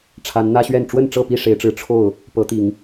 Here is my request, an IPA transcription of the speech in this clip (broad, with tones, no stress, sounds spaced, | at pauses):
ʈ͡ʂʰ a˨˦ n n̪ ä˦ ɕ ɥ ɛ˥˨ n ʈ͡ʂ w ə˥˨ n ʈ͡ʂ ɤ˥˨ p i˥˨ ʂ e˨˦ ɪ̯ ʈ͡ʂ ɻ̩˨˦ ʈ͡ʂʰ o˥˨ ʊ̯ | p ɤ˨˦ t̪ i˨˦ ŋ